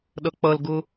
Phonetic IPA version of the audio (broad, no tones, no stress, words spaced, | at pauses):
ɗʌk͡pʌlɡʊ